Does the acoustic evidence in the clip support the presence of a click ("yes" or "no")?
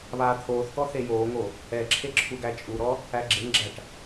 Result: yes